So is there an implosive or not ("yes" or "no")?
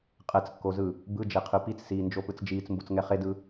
no